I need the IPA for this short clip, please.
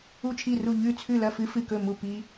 u˥˩ t͡ʃʰ i˥˩ r u˥˩ ʎ ʉ˥˩ t͡sʰ ʉ˥˩ l ɐ˥˩ f ɨ˦ f ɨ˥˩ k ɵ˥˩ m u˥˩ p i˦

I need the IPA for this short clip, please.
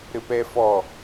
ɾ ɘ p ɛ f ɔ

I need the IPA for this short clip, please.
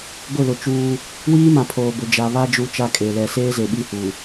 ɡʷ ɪ˦˨ l ʊ˨ t͡ʃ uː˦ | w iː˦ m ã˨ pʰ oː˨ b ʊ˨ d͡ʒ a˨ β a˦ d͡ʒ u˦ t͡ʃ a˦ kʼ e˨ l ɛ˨ s eː˦ z e˨ ɓ i˦˨ h u˨

